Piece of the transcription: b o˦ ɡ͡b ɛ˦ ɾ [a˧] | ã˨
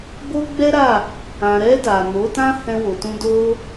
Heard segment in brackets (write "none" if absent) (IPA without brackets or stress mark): a˦˨